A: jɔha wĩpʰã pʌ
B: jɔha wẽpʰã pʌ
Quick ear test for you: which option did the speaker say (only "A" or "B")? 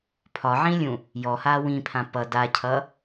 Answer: A